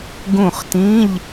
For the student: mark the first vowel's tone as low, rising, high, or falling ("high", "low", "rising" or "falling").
falling